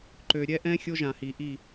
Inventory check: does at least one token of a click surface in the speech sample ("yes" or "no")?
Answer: yes